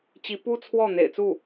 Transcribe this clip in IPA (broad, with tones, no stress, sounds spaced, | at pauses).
t͡ɕ i˧˥ p u˥ t͡sʰ w ɔ˥˩ n̪ ḛ˨˩ ɪ̯ t͡s u˥˩